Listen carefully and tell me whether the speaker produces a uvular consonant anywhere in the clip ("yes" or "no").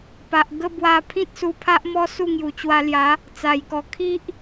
no